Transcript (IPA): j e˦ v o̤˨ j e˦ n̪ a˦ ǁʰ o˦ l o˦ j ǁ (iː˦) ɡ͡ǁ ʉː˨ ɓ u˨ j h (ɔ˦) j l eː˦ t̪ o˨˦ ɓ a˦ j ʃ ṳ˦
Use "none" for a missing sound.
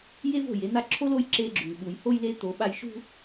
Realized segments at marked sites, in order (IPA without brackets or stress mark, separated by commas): eː˦, o˦